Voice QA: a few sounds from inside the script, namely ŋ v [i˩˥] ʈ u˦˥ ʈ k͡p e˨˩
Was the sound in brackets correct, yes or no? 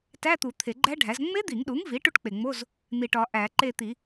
yes